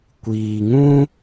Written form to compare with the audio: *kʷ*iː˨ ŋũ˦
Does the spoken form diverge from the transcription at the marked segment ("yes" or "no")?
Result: no